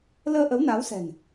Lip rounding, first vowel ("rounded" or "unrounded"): unrounded